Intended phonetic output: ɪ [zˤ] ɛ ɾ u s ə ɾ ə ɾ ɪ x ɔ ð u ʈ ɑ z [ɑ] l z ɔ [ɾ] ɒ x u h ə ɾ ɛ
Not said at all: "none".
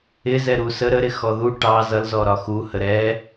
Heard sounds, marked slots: z, ʌ, ɾ

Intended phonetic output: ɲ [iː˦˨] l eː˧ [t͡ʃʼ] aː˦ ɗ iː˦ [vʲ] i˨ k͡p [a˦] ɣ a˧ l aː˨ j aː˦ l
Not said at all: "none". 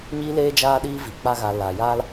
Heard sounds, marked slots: iː˧, d͡ʒ, v, a˦

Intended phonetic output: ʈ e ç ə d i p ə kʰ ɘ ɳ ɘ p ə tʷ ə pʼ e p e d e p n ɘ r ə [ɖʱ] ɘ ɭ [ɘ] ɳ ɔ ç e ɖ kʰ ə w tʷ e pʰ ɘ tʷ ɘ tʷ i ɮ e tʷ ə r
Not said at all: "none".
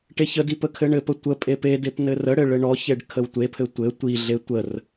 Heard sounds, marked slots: ɽ, ɘ

